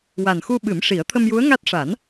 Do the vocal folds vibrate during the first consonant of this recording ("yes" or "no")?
yes